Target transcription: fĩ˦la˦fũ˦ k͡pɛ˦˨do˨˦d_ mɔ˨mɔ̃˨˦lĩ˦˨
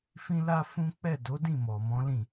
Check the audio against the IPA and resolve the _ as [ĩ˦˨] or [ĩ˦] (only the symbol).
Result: ĩ˦˨